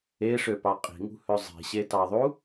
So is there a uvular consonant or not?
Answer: yes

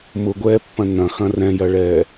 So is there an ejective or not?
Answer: no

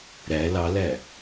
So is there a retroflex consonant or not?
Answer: no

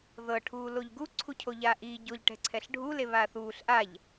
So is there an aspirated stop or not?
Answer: yes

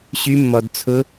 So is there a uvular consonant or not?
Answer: no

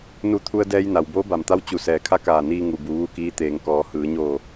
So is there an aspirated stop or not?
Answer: yes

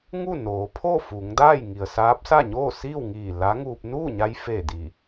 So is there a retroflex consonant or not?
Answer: no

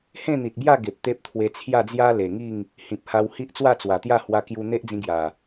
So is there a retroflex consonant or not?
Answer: no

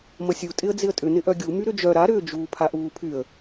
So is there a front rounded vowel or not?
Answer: yes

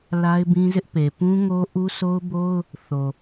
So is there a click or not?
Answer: no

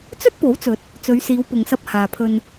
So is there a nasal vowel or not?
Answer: no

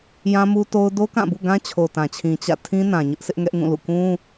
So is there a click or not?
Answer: no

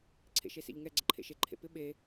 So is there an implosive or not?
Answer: yes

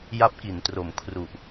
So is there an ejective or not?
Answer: no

